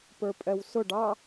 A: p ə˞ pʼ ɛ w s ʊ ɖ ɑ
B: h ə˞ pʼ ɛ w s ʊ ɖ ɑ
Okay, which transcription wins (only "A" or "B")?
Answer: A